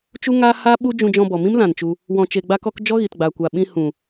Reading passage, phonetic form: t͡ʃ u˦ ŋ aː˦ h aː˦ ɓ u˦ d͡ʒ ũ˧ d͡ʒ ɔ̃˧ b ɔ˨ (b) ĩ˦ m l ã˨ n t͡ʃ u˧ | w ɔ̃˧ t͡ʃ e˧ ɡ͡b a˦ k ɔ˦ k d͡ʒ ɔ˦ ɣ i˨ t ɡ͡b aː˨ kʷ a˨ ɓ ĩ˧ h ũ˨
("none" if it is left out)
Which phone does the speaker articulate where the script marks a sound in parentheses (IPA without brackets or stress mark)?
m